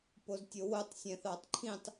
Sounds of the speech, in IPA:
poztʲowotˤ sʲɛ̃θɑtˤǃʰĩtˤ

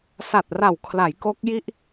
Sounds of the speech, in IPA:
sa˨˩t̚ra˨˩wkʰla˩˦j ko˦˥k̚ji˥˩ʔ

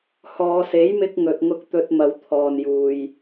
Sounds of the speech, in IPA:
hɔː˨˧se˨˥jmɪ˧k̚ ŋɵ˨t̚ŋʊ˧k̚ t̪ɵ˧t̚mɐ˨˧w t̪ʰɔː˨njuː˨j

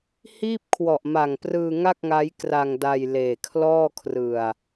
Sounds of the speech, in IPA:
hiː˥˩p̚kʰwɔ˨˩ʔma˨˩ŋprɯː˧ ŋa˥˩k̚ŋa˦˥j kra˧ŋ da˧j leː˨˩kʰlɔː˥˩kʰrɯ˨˩a̯

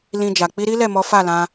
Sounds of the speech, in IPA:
lĩ˧d͡ʒa˨ k͡pi˧ɾi˦lɛ˦˨mɔ˨˦ fa˦˨lã˧

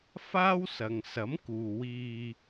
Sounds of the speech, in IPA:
faː˥wsɐ˨ŋ sɐ˨˥mkuː˨wiː˧

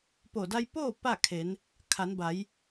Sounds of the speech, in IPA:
po˧˩da˧jpoː˥˨ pa˥˨kʰe˩˧n | kʰa˩˧nba˩˧j

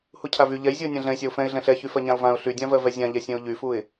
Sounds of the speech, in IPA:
hucʰavy ʎɛjzʲuə̯ nʲãɮɛ̃ɪ̯sʲaʊ̯ fɛ̃ɪ̯ɮɛ̃ ɬɛçy fɜɲãʊ̯vãʊ̯ ɬydʲãvɜvɛ zʲãʎɛsʲɛ̃ʊ̯ ʎyfuɪ̯

